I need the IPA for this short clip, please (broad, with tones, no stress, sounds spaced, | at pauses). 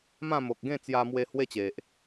m ã˥˧ m o˨ k̚ ɡ ẽ˥˧ t͡s j a˧ m w e˧ h w e˦ t͡ɕ e˨ ʔ